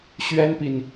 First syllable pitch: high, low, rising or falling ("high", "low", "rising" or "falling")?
high